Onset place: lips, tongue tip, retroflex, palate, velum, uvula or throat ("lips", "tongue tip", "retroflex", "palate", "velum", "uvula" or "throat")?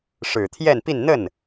retroflex